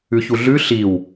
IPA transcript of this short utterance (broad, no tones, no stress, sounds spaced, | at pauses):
ʉ ç u ɮ ʉ ɬ i w